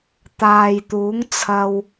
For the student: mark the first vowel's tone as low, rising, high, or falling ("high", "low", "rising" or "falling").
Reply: low